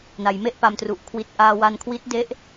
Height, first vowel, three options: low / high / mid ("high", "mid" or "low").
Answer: low